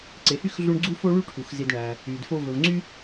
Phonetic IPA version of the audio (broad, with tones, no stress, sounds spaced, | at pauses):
ǀ e˨ h y˥ x ɮ u˥ ɳ ɡ͡ǀ u˥ f o˥ ɭ y˥ ʈʰ u˩ x z i˨ d ɳ æ˩ | y˩ d f o˦ v ɵ˨ v ŋ͡ǀ y˥